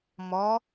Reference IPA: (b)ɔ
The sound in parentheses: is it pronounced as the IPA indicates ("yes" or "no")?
no